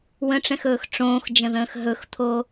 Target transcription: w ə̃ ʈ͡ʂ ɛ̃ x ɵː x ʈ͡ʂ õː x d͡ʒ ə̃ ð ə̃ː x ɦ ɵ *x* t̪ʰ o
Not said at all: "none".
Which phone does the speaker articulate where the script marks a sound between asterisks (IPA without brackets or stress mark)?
x